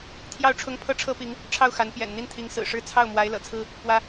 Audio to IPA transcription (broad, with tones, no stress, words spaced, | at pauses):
t̪ʰjɑ˥˩ʊ̯ʈ͡ʂʰʊ˥ŋ pʰɤ˥˩ʈ͡ʂʰɤ˥pi˧˥ŋ | ʈ͡ʂʰɑ˥˩ʊ̯ xa˧˥n pjɛ̰˨˩n n̪i˥˩nt̪ʰi˧˥ŋ sɹ̩˨˩ʂɻ̩˥ t͡sʰɑ˥˩ʊ̯mwa˧˥ɪ̯ lɤ̰˨˩t͡sʰɹ̩˥ | pwä˥